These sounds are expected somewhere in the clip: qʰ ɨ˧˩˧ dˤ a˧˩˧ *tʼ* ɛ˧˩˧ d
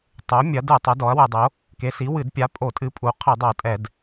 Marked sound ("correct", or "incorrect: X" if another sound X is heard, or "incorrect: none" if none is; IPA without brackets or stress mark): correct